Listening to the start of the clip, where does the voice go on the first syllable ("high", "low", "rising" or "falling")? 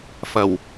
low